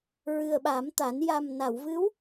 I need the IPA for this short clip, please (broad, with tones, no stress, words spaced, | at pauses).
ɹɨ˨˩ə̯ɓa˨˩˦mt̪a˨˩˦n ja˨˩mna˨˩˨wvɨ˧˥w